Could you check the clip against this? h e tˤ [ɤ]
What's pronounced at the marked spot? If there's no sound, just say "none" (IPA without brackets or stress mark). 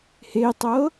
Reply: ɤ